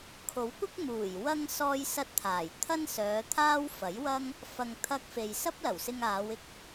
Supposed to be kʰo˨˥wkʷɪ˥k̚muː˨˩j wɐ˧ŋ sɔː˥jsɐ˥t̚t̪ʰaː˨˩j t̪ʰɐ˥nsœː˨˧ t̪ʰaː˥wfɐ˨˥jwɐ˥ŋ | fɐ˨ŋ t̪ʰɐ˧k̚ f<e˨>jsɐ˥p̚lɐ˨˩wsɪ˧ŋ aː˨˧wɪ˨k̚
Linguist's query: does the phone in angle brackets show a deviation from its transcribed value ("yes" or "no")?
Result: no